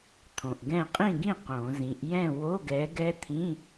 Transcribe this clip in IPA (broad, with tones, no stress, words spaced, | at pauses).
t̪ʰõ˨ʔɡɛ̃˥˨ qʼĩ˥˨ɡĩ˥˨ qõ˨˩˦zĩ˨˦ʔ jɛ̃˥˨ wo˧˥˧ɡɛ˨˦ɡɛ˦˥t̪ʰĩ˧˥˧